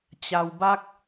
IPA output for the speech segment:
t͡ɕ a˧ w b a˦ k̚

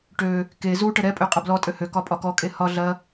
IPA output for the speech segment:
ʈ ø | k e z u ʈ ə ɾ ɛ pʼ ø qʼ ɐ b l ɔ tʼ ø h ø k ɒ pʼ ɒ k ɔ kʼ e h ɒ ɮ ɐ

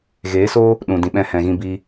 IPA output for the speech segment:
ɣ eː˨˦ s o˦ | ɗ ũ˨ d ĩ˨ ɓ ɛ̃˧ h ɛ̃˨ ɣ ĩ˧ b i˧

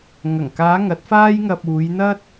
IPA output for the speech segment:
ŋ ɐ˨˩ ŋ k aː˨˧ ŋ ɐ˨˥ t̚ f aː˥ j ŋ ɐ˧ p̚ uː˨˧ j n̪ ɐ˥ t̚

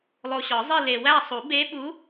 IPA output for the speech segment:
lˠ o˨ ɕ ɒ˨˩˦ zˤ i˦˨ l e˨ w æ˦˨ sˤ u˨˩˦ b e˧˥ ɓ u˧˥

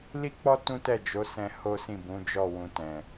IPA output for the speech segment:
l i˦ k͡p ɔ˦ t ũ˦ t ɛ˦˨ d͡ʒ o˨˦ s ɛ̃˧ h o˦ s ĩ˦˨ b ũ˨˦ d͡ʒ ɔ˦˨ w ũ˧ t ɛ̃˨

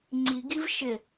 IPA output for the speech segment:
ŋ͡ǀ i ɡ i v ʃ ɪ

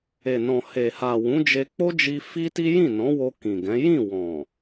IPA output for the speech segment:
e˨ n ɔ̃˨ h e˨ h a˨ w ũ˨˦ d͡ʒ e˧ k͡p o˦ d͡ʒ i˧ f i˦ t i˦ j ĩ˦˨ n ɔ̃˨˦ w o˧ k ĩ˨ ɡ ɛ̃˨˦ j ĩ˦˨ w ɔ̃˨

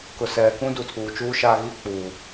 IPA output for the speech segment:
k ʊ˨ s ɛ˨ k ũ˦ d u˨ tʰ uː˨ t͡ʃ uː˦ ʃ a˦ ɣ i˦ k͡p uː˨

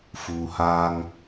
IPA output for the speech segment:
f uː˨ h aː˦ ŋ

